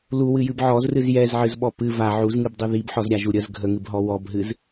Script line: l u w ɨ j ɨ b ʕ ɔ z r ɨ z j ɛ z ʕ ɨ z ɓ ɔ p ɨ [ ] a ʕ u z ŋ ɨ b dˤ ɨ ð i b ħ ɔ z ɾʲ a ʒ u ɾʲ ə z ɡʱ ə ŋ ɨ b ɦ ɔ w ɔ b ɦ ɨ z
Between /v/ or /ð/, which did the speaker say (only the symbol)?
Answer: v